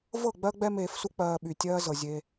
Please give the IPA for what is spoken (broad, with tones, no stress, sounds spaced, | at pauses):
v ɤ˦˨ ɡ͡b ɜ˦ ɡ͡b ɛ˦ m eː˧ f s u˦ k͡p ɜː˧ ɓ y˨ tʲ ɜː˦ z ɤ˨ zʲ e˧